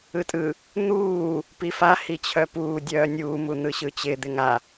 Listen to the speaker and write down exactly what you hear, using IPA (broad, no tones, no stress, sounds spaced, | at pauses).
ɯ tʼ ɯ | n̪ uː | p i f a h i t͡ɕʰ œ p uː dʲ œː nʲ uː m u n̪ ɯ ɕ ɯ t͡ɕ ɪ d̪ ɪ ŋ a